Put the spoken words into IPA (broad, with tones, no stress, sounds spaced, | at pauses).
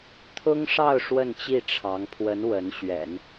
t̪ʰ ʊ˥ ŋ ʂ ɑ˥˧ ʊ̯ ʂ w ə˥˧ n t͡ɕ i˥˩ ʈ͡ʂʰ ɑ˧˥ ŋ pʰ w ə˧˥ n w ə˧˥ n ɕ ɥ ɛ̰˨˩˦ n